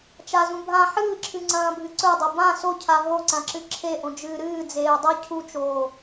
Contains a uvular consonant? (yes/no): no